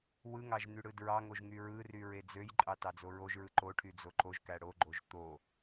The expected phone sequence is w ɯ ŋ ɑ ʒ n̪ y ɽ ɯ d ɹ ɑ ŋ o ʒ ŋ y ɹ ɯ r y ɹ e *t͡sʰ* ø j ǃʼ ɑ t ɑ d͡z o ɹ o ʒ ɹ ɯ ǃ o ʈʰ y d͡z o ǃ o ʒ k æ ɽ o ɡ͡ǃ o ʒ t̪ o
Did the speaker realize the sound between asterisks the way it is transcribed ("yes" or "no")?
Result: no